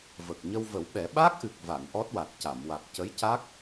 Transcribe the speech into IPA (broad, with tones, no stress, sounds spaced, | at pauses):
v ə˨˩ k̚ ɲ ə˧ w v ə˨˩˦ w ɓ ɛ˨˩˦ ɓ a˦˥ k̚ ʔ ɨ˨˩ k̚ v a˨˩˨ n ʔ ɔ˦˥ t̚ w a˨˩ t̚ c a˨˩˨ m w a˨˩ k̚ c ə˧˥ j c a˦˥ k̚